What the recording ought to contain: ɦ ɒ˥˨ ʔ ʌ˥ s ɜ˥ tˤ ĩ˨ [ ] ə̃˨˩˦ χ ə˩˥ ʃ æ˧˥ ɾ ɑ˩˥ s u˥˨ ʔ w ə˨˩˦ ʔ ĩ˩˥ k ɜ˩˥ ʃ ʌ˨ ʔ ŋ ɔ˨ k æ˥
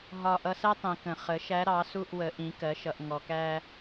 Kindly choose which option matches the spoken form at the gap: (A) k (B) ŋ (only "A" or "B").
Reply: A